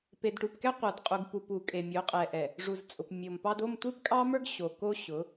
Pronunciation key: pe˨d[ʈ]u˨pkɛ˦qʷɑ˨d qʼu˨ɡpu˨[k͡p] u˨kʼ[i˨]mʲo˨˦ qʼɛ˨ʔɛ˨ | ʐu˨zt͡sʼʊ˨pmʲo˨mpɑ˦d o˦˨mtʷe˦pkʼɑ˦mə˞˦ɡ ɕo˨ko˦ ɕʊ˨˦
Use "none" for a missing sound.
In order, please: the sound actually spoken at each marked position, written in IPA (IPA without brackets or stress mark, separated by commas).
ʈ, p, e˨